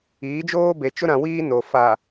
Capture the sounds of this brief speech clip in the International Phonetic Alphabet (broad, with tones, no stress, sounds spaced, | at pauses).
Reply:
iː˨˦ d͡ʒ oː˦ b e˨ t͡ʃ ʊ˦ ɾ ã˨ w iː˦ n o˨ f a˨